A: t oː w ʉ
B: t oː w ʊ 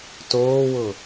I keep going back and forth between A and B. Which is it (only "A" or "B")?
B